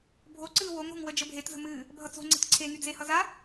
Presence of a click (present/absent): present